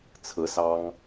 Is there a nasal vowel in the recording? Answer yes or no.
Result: no